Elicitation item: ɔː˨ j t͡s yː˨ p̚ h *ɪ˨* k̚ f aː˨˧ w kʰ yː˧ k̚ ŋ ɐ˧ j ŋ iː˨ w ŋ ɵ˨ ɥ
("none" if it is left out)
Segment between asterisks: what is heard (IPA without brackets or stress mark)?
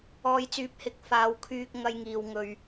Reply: ɪ˨